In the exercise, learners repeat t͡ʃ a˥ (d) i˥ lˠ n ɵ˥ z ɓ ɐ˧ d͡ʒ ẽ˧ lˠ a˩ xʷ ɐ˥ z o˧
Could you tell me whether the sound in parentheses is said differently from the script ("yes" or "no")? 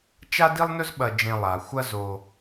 no